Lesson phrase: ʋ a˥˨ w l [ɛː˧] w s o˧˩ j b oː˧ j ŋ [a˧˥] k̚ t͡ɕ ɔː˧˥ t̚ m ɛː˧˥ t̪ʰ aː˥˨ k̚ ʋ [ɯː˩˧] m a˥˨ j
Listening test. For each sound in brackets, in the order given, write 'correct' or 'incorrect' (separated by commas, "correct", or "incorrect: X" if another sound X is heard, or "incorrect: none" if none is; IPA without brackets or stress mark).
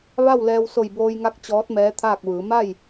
correct, correct, correct